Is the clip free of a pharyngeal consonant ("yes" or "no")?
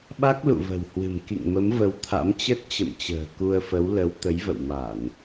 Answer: yes